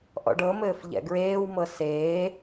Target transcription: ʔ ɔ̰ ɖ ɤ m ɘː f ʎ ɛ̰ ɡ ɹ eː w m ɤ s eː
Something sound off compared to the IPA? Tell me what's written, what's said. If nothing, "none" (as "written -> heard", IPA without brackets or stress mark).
none